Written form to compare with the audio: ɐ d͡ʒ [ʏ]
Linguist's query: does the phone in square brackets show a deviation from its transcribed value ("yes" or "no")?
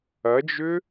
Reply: no